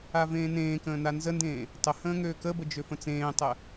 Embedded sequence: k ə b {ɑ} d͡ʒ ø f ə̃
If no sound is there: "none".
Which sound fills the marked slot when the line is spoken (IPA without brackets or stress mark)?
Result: ə